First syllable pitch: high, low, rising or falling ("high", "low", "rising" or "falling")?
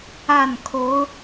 falling